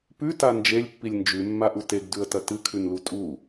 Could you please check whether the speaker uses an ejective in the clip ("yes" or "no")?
yes